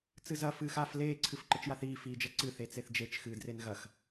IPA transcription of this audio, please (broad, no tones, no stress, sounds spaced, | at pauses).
t͡s ɨ z ɐ f ɨː x a f l eː ǀʰ ɨ f ǃ ɘ t͡ʃ j a θ iː f iː d͡ʒ ɐ ǀ ɨ θ e t͡s e θ d͡ʒ e t͡ʃ x ɨː d r e n ɣ ɐ x